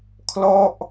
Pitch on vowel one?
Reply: falling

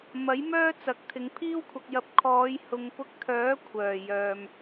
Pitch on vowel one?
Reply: rising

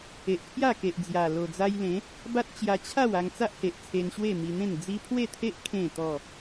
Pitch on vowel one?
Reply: low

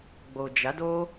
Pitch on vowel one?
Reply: low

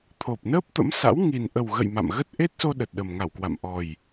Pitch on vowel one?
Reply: low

